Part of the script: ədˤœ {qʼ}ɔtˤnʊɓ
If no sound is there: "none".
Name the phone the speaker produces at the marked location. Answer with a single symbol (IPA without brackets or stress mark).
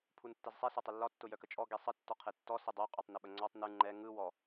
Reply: qʼ